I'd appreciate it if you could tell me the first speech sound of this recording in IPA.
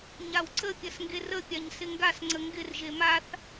ɲ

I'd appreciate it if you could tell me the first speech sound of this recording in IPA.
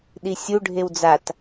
ɗ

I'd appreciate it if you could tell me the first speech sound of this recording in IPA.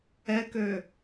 ɛ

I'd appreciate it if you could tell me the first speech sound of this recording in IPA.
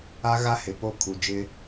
a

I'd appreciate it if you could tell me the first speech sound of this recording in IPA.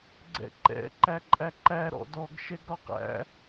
ɡ͡ǀ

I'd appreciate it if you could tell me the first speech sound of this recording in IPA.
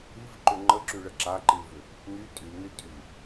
i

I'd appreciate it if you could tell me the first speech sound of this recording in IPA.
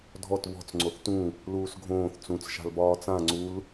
dʱ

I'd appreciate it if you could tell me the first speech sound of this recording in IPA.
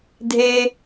dʱ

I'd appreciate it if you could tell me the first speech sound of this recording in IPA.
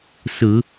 s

